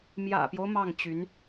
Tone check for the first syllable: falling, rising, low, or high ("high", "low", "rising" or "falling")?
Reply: low